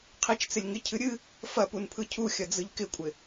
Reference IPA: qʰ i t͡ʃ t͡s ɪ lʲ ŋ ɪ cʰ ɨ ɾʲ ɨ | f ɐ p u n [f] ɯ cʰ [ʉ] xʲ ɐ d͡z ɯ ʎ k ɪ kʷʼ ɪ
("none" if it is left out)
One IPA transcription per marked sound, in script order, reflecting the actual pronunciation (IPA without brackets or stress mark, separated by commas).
pʰ, u